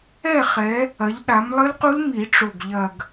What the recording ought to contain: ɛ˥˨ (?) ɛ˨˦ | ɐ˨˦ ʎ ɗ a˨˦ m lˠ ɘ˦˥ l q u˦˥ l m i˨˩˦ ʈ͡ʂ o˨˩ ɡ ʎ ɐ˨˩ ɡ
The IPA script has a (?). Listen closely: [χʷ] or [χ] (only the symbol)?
χ